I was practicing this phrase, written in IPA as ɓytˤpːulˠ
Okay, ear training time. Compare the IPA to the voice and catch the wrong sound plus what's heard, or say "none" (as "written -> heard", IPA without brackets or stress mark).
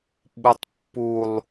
y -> u